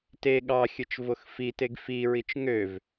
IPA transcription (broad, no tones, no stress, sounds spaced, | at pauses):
t e ɠ ɑ xʲ ɯ t͡ʃ v o x f i t e ɡ f i ɹ i t͡ʃ ŋ ø v